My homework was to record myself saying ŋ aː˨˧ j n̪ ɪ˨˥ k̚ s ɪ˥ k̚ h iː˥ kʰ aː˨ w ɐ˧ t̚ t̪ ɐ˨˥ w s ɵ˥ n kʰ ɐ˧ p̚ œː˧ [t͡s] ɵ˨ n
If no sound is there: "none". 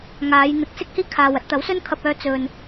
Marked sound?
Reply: t͡s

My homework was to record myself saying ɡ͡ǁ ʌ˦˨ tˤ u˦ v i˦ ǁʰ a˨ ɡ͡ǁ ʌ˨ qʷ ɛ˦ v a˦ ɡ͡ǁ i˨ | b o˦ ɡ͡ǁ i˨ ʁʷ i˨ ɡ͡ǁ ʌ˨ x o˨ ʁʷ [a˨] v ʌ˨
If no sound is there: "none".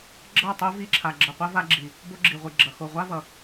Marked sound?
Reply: a˦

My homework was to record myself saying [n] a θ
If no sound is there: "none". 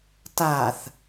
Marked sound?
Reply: t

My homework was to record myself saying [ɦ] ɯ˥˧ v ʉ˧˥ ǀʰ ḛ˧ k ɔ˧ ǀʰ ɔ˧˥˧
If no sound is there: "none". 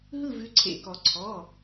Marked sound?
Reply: ɦ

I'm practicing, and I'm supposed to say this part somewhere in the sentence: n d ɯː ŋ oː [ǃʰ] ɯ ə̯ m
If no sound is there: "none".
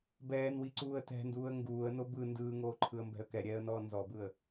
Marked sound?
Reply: ǃʰ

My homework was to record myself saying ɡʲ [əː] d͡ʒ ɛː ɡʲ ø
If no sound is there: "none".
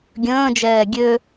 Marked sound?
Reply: ə̃ː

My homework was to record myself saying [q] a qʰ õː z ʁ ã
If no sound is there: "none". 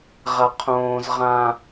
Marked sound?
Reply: ʁ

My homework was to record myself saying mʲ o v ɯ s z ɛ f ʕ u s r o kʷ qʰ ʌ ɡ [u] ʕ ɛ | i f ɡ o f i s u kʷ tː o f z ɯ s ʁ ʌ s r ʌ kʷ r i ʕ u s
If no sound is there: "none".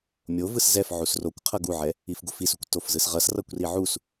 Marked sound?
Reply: u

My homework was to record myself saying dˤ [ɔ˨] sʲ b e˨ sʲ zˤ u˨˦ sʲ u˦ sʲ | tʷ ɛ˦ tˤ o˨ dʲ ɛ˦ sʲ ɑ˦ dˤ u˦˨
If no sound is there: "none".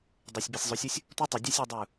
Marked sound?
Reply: o˨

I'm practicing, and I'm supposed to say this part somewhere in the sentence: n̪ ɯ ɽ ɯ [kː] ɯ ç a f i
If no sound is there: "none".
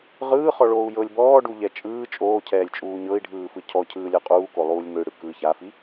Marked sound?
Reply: k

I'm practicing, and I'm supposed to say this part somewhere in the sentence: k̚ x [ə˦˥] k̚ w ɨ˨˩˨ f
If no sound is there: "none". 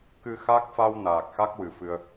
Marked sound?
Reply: a˦˥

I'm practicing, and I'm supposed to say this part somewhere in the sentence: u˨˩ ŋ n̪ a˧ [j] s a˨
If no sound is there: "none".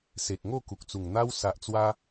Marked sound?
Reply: w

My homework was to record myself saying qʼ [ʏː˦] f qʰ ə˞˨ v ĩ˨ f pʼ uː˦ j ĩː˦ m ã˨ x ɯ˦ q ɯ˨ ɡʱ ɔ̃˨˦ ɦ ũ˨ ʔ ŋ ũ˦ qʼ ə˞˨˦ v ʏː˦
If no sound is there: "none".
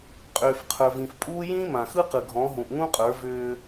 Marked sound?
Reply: ʏː˨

